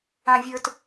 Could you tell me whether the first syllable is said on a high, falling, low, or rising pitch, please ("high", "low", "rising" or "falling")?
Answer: high